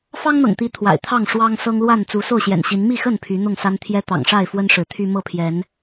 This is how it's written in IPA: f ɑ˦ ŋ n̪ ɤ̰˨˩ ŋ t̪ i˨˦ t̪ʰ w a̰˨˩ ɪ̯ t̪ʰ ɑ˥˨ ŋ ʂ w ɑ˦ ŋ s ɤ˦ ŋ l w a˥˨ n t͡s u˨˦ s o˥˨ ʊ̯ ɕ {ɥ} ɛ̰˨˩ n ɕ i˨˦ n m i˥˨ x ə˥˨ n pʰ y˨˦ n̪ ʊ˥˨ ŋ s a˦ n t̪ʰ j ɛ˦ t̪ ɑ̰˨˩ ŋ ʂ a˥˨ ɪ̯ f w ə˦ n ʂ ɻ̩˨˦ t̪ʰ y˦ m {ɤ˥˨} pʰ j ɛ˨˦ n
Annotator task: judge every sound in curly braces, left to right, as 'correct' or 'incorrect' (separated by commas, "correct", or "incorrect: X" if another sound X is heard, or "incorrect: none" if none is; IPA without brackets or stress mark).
incorrect: j, correct